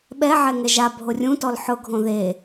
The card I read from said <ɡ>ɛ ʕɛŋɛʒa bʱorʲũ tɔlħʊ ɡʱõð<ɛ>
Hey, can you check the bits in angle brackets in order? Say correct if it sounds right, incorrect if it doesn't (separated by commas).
incorrect, incorrect